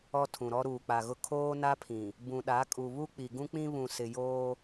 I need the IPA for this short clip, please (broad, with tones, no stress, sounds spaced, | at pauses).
ɔ˦ tʰ ũ˨ ɾ ɔ˦ ɾ uː˨ k͡p a˨ ɣ ʊ˦ kʰ oː˦ n a˦ pʰ ĩ˨ | b ũ˨ ɗ a˨˦ kʼ u˨ β u˦ k͡p i˨ ɡ ũ˦ k͡p ĩ˦ β ũ˨ s ɪ˨ j oː˦